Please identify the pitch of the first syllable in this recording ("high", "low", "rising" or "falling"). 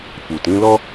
low